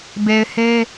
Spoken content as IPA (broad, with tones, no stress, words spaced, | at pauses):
be˨ɪ̯he˦